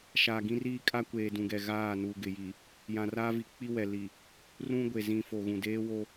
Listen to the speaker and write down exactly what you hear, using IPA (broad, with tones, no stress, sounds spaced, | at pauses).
ʃ a˨ ɡ ĩ˦ r iː˦ kʼ a˦ kʷ eː˨ d ũ˨ ɡ ɛ˨ ɣ aː˦˨ n uː˨ ɡ ɪ˨ j i˨ | j ã˨ r aː˦ v i˨ k͡p i˦ w ɛ˨ l i˨ | r ũ˦ ɡʷ e˨ z ĩ˨ f o˨ ɣ ũ˨ d eː˦ w o˦